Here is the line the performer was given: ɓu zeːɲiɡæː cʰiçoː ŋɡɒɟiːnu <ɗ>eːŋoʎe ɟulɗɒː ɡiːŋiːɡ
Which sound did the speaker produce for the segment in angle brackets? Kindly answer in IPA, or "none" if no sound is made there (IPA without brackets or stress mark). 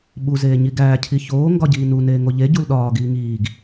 n